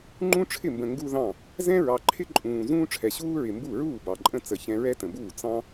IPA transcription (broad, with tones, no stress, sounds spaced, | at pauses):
ŋ͡ǃ ũ˥ ʈ͡ʂʰ ɪ˥˩ m b ə̃˨ ŋ ɡ u˥ ð ɑ̃˥˩ | z ɛ̃˥ ɹ ɑ˨ ǃʰ ɪ˥ ǃʼ ũː˨ z ũː˥ ʈ͡ʂʰ ɛ˨ ɕ uː˥ ɹ ɪ˨ m b u˥˩ ɹ uː˥˩ b ɑ˨ ǃʼ ə̃˥˩ t͡s ə˥˩ ç ɛ̃˥ ɹ ɛ˥ t ə̃˨ b uː˥˩ t͡s ɑ̃˥